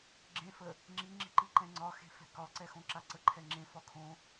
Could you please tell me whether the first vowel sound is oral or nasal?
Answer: nasal